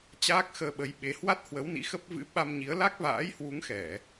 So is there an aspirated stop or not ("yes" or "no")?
no